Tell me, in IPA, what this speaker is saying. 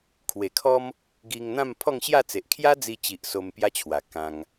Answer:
kʰwe˨˩kʰɔ˦m | ɡi˧ŋn̪ã˥˧m pʰɔ˥˧ŋɕja˥˧t͡se˨ʔ kʰja˦d͡zi˧t͡ɕi˨ʔ so˧mpja˦t͡ɕʰwa˨˩ kã˧ŋ

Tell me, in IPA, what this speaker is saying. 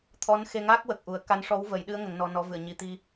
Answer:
t̪ʰɔ˧˥nxe˧ŋa˦˥k̚ wə˨˩k̚ʔu˨˩˦ə̯ ka˧˥nʂɔ˧˥wvə˨˩˦jɗɨ˧˥ə̯ ŋə˨˩˦ŋnɔ˧nɔ˧˥vɨ˨˩˨ə̯ ɲi˨˩t̪i˧

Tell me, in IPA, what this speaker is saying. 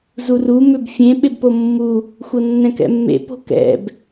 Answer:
zuru mʏbfʲẽ ɓebpomːu | xʷɤnːɛ̃kɛ̰mːḛ po̤kɛ̰b

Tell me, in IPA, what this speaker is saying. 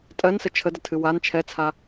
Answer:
tʼɜnsə t͡ʃʰədətʰɨ wan t͡ʃʰɛt͡sʰa

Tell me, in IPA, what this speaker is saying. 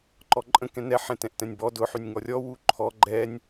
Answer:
ǃɔǃʼə̃ kɛ̃nɛ ħɛ̃tɛ̃ʔtɛ̃nʲbɔ dʊ ħynʲŋɔrʲɔ wuǃʰɔ ɡ͡ǃɛnʲ

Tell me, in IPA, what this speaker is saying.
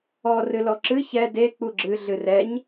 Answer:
ɔ rɨlɔǁɨ çɛ de k͡puɡ͡ǁɨ ɮɨrɛɲ

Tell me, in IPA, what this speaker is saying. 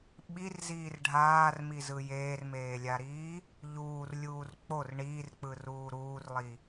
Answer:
ɓirziːr ɖʱaːrmizɯ jeːrmeːlʲaɾiː | ʎuːrlʲuːr k͡por ɳiːrk͡pɯruː ɾuːrlˠi

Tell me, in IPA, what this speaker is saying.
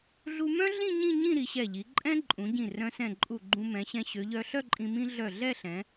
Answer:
ɮu˧mœ̃˥ɮĩ˥˧ ɲĩ˥˧ɲĩ˥˧ ɾi˩˧ɕɛ˧˩ʎi˩˧ ǃʼɛ̃˥ ǃʼũ˩˧ɟĩ˧˩ rœ̃˧sɛ̃˧˩ ǃʼu˧˩ɡ͡ǃũ˧ mɛ̃˩˧ɕɛ̃˧ ɕø˩˧ʎœ˧ ɬœ˥˧ǃʼĩ˧ mĩ˥ ɮœ˧˩ɮɛ˥˧ɬɛ̃˩˧

